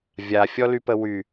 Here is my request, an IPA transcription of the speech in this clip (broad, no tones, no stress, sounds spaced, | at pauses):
vʲ a fʲ ɔ l y p ə w y